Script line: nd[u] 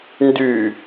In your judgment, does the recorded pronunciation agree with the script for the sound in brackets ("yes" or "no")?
no